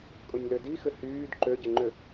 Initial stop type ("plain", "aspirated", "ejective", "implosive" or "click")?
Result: ejective